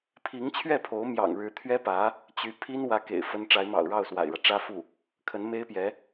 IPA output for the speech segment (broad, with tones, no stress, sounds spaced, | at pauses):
pʰ i˧˥ ŋ t͡ɕʰ ɥ ɛ˥˩ pʰ o˧˥ ʊ̯ m j ɑ̰˨˩ ŋ ɻ ɻ̩˧˥ t̪ʰ ɥ ɛ˥ p ä˧˥ | t͡ɕ y˧˥ pʰ i˥ n w ä˧˥ k ḛ˨˩ ɪ̯ f ə˥ n ʈ͡ʂ a˧˥ ɪ̯ m ɑ̰˨˩ ʊ̯ ɻ ɑ˥˩ ʊ̯ s w a̰˨˩ ɪ̯ ɻ ä˦ ʈ͡ʂ ä˥ f u˥˩ | kʰ ə˧˥ n m e˥ ɪ̯ p j ɛ˧˥